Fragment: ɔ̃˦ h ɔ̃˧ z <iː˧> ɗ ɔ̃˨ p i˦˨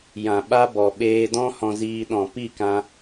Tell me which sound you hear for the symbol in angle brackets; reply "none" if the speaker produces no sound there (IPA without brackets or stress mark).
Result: iː˧